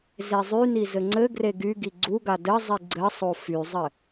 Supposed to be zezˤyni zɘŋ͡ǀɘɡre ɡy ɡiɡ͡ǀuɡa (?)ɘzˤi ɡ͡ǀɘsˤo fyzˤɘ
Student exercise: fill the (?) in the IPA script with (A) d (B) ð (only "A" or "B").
A